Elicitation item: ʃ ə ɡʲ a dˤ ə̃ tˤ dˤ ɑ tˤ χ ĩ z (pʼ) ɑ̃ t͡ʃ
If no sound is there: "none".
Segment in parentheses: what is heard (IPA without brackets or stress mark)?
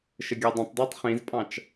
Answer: pʼ